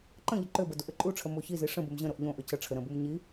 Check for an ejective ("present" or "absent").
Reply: present